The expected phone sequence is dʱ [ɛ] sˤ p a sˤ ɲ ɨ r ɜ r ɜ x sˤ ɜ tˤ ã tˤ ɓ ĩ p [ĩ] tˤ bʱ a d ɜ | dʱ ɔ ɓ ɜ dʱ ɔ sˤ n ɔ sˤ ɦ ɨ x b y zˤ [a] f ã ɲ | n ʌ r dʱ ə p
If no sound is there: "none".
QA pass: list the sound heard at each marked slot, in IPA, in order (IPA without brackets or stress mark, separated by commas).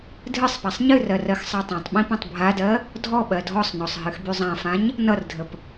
ɨ, ĩ, ã